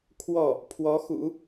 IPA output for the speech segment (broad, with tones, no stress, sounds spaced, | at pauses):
kʰ w ɔ˥˩ | pʰ w ɔ˧˥ x ṵ˨˩˦